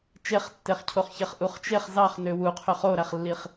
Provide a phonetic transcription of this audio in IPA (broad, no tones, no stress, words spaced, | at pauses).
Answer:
t͡ʃeχtːeχcʰoχçeχ ʔuχt͡ʃeχ zɑχ nøwuqʰøχ oɾæχlːiχ